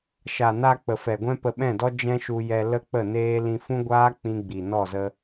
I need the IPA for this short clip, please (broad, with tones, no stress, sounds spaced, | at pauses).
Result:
ʃ a˨ n a˧ k͡p ə˨ f ɛ˨ ɡʷ ɛ̃˦ p ə˧ ɓ ɛ̃˦˨ d ɔ˦ d͡ʒ ɛ̃˦ ʃ u˧ j ɛ˧ l ə˦ k͡p ə˦˨ n eː˦ l ĩ˧ f ũ˦ ɡʷ aː˦ k͡p ĩ˦ ɡ͡b i˨ n ɔ˦˨ z ə˧